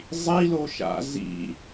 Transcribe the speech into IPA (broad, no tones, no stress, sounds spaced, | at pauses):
zˤ i l o ʃ a̰ z ḭ